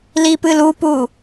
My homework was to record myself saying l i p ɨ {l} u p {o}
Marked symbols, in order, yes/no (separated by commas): yes, no